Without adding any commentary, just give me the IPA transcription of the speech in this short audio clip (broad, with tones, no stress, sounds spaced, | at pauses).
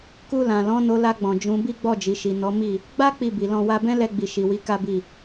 k u˧ l ã˨ l ɔ̃˨˦ n o˧ l a˧ ɡ͡b ɔ̃˨ d͡ʒ ũ˨˦ b i˦ ɡ͡b ɔ˦˨ d͡ʒ i˨ ʃ i˨ n ɔ˨˦ m i˦˨ | ɡ͡b a˦ k͡p i˦˨ b i˨ l ɔ̃˧ w a˦ b ɛ̃˦ l ɛ˧ ɡ͡b i˨ ʃ i˨ w i˨˦ k a˦ b i˦˨